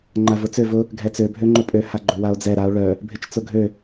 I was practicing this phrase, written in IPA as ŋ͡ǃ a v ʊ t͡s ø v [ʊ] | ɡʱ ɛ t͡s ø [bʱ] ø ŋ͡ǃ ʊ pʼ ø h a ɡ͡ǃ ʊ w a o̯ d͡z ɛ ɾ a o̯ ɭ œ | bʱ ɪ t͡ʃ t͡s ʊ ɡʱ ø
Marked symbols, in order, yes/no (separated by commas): yes, yes